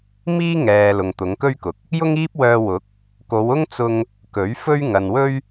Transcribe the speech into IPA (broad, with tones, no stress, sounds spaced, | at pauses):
m iː˥ ŋ ɛː˨ l ʊ˨ ŋ t̪ ʊ˨˧ ŋ k ɵ˥ ɥ k ʊ˨˥ k̚ | j ʊ˥ ŋ iː˥ p̚ w œː˧ w ʊ˨˥ k̚ | k o˨˧ w ʊ˥ ŋ t͡s ʊ˧ ŋ | k ɵ˨˥ ɥ f ɵ˥ ɥ ŋ ɐ˨ n w ɵ˥ ɥ